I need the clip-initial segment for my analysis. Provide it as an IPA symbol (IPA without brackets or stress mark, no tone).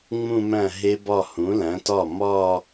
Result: ŋ͡m